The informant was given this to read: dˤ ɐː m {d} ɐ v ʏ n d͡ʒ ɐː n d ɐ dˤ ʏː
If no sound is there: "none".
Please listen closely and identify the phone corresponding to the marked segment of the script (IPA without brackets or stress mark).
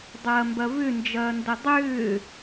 b